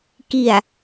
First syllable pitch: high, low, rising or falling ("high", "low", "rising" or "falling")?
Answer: low